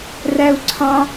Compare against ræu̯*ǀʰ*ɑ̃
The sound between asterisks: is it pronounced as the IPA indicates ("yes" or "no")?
yes